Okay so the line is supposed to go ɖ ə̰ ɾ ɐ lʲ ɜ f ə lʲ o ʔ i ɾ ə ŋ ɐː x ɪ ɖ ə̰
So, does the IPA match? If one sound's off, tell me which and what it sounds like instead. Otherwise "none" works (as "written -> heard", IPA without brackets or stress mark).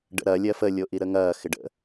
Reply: none